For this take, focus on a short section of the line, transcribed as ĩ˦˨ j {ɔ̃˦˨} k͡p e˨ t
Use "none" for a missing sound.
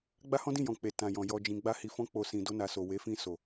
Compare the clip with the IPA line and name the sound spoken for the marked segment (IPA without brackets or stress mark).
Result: ɔ̃˨